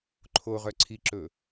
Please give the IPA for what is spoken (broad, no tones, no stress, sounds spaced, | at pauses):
ǃʰ o ʁ œ ǀʰ i ǁ ɵ